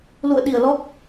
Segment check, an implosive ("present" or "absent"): present